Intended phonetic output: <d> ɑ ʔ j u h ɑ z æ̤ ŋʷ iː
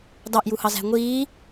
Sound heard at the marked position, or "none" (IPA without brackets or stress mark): d